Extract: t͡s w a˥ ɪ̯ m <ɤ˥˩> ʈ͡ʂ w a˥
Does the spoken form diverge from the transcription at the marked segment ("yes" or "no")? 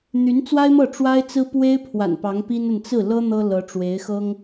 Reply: no